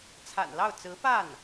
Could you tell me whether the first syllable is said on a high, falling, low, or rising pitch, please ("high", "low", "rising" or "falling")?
low